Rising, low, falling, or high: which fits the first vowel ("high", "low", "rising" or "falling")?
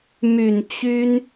low